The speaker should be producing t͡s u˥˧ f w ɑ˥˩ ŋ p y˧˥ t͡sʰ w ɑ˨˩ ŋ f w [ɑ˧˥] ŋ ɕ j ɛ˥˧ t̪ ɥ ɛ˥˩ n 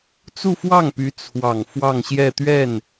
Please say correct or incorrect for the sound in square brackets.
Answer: incorrect